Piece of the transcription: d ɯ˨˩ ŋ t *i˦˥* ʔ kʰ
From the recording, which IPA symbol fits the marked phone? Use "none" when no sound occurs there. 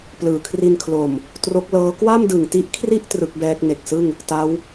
i˦˥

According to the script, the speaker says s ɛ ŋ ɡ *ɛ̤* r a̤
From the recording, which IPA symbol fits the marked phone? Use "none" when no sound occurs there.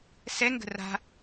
ə̤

